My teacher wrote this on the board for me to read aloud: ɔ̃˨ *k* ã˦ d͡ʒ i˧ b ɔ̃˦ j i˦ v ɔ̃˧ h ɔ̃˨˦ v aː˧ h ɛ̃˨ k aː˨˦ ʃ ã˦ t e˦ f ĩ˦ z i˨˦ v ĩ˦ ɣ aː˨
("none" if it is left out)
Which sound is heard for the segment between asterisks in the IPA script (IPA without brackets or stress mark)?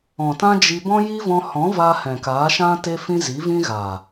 t